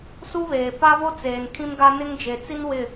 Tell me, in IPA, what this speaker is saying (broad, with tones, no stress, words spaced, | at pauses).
su˦βeː˨ pa˦βo˦t͡seː˨n kʰĩ˦mɡa˦ nɪ˦ŋd͡ʒe˨ t͡si˦nwɪ˦˨